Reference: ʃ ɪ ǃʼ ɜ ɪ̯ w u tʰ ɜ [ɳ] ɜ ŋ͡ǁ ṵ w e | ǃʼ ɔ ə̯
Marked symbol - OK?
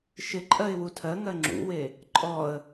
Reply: no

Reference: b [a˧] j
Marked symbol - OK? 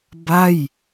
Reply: no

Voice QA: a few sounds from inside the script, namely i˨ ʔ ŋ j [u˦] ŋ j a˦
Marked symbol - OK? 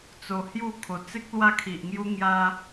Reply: no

